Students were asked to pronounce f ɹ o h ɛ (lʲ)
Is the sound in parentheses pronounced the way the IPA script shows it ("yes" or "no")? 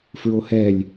yes